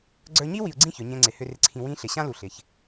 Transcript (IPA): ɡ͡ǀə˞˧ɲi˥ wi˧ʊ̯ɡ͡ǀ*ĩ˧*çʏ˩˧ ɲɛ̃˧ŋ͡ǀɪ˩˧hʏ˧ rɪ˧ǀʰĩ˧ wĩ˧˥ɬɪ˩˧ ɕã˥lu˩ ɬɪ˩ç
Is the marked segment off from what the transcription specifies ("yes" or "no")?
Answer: yes